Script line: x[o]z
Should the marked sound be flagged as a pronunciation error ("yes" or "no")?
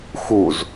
yes